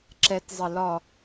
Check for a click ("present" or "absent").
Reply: present